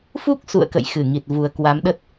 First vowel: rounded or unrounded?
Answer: rounded